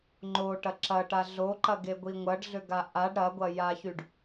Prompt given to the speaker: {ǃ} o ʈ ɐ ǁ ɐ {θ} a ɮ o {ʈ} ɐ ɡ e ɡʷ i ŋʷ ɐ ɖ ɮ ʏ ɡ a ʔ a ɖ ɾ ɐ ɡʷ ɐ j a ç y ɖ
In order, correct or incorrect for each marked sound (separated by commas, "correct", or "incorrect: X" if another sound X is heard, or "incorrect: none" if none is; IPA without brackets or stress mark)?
incorrect: ŋ͡ǃ, incorrect: ʈ, incorrect: ǃ